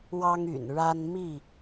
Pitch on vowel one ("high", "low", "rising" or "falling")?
high